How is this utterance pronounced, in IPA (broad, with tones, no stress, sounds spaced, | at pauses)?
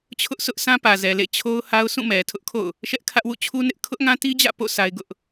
t͡ɕʰ ʊ˦ ʔ s ʊ˦ ʔ sʰ ã˦ p ä˨ z ɛ˨ l ḛ˦˨ t͡ɕʰ o˦ ʊ̯ h a˦ ʊ̯ s ũ˦˨ m ɛ˨ tʰ ʊ˦ ʔ kʰ o̰˦˨ ʊ̯ | ʃ ɛ˦ ʔ kʰ ä˦ ʔ w ṵ˦˨ t͡ɕʰ u˦ n ɪ˦ ʔ kʰ ʊ˦ ʔ ŋ ã˦ t i˦ d͡ʑ ä̰˦˨ p o̰˦˨ s a˦ ɪ̯ ɡ ʊ˦ ʔ